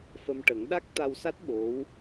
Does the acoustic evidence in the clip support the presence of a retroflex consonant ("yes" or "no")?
yes